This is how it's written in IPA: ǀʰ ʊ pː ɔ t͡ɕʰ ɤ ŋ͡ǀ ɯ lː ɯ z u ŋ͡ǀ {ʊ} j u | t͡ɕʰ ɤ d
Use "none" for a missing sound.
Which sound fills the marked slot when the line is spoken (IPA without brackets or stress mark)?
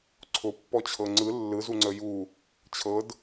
ə